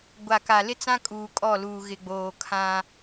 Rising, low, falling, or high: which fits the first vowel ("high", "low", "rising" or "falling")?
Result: low